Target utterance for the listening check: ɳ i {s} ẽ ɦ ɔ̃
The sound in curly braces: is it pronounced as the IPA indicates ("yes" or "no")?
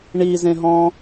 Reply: no